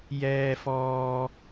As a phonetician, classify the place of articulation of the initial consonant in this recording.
palatal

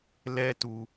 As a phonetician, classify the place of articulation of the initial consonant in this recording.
alveolar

